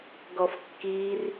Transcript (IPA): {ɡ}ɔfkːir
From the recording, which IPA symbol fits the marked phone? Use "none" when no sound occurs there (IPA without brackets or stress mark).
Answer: ɡ